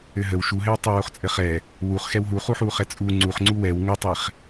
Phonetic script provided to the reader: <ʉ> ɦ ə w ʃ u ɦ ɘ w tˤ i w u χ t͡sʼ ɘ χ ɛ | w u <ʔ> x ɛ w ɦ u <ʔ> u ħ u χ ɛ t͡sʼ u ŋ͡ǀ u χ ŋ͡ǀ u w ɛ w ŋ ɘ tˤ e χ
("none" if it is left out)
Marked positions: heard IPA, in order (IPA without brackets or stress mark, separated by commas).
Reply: ɘ, χ, χ